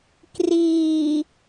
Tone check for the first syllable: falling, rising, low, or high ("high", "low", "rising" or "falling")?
low